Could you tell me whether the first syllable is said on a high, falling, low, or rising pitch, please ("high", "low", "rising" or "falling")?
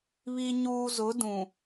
high